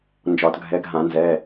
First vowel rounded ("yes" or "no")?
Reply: yes